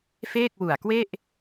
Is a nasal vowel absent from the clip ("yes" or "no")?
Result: yes